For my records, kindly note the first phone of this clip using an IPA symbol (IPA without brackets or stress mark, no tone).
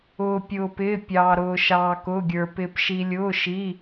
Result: ʊː